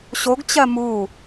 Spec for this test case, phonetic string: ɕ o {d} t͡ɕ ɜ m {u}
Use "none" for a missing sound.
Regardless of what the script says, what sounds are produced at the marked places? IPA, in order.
ɡ, u

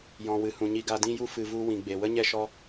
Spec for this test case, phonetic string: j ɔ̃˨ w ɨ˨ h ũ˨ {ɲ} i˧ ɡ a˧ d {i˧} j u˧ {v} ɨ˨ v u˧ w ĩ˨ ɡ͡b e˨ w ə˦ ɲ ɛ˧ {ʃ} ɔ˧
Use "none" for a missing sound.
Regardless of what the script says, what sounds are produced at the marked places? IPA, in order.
ɲ, ĩ˧, f, ʃ

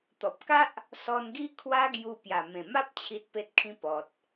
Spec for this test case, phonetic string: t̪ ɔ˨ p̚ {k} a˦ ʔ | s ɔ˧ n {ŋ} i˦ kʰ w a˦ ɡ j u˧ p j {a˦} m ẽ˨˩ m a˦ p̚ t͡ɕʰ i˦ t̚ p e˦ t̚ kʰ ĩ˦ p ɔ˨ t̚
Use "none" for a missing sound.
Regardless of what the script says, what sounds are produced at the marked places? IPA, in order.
k, ɡ, a˨˩

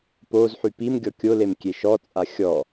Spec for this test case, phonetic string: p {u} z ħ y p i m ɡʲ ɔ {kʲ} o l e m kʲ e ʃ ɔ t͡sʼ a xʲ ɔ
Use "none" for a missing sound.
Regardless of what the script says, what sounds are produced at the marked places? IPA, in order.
o, kʲ

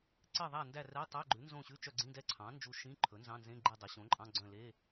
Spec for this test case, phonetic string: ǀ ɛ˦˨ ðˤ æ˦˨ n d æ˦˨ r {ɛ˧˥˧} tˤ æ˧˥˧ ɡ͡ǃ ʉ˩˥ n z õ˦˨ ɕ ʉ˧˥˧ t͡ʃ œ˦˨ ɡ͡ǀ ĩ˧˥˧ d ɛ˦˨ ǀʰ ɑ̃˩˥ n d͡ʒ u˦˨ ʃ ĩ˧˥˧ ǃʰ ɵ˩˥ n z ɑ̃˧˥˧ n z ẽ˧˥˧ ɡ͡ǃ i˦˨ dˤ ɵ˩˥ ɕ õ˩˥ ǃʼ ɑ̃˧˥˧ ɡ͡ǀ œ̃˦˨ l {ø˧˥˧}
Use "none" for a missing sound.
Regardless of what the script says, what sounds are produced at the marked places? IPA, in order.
ɛ˧˥˧, e˧˥˧

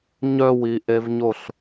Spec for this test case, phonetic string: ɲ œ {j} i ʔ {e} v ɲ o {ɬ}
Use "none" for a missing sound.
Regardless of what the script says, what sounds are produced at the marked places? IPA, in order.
w, e, ɬ

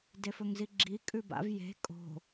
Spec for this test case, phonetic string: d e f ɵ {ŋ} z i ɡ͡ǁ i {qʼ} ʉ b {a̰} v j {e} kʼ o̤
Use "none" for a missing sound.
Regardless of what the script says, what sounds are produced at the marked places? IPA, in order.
ŋ, kʼ, a̰, e̤

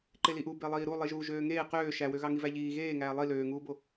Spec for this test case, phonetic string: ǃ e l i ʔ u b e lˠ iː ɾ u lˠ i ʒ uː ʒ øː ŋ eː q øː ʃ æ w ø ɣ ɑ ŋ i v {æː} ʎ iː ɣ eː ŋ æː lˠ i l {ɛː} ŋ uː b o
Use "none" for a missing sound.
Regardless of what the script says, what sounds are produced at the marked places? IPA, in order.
æ, øː

